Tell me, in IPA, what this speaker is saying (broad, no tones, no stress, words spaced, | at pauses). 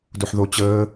duħðo t͡ɕəː